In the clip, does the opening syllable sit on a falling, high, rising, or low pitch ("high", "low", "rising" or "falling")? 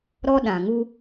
high